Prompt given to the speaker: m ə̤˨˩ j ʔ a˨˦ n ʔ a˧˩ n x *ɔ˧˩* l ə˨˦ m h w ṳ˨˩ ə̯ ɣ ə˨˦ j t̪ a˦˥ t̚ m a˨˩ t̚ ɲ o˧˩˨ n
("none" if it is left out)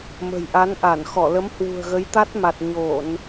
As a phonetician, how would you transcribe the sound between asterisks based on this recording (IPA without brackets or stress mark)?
ɔ˧˩